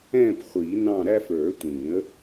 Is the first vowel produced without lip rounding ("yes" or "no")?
yes